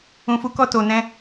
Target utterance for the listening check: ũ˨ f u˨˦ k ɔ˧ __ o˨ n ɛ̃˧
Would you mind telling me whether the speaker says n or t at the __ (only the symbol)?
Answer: t